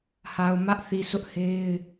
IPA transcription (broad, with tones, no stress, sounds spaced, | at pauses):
h a˨ ʊ̯ m ä˦ ʔ θ i˨ s ʊ˦ ʔ h e˦ ɪ̯